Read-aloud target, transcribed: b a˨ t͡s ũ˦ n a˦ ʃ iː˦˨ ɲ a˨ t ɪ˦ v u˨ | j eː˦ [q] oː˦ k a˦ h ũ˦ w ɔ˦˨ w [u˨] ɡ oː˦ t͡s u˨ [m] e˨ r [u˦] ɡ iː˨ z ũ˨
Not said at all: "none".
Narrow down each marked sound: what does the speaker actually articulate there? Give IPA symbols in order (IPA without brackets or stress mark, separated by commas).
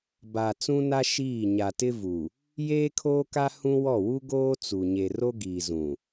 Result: kʰ, u˦, ɲ, o˦